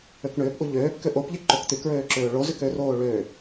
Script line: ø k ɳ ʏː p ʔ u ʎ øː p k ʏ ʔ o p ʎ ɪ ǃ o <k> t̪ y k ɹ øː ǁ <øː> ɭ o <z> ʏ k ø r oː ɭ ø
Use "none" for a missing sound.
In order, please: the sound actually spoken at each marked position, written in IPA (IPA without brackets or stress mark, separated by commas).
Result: k, øː, z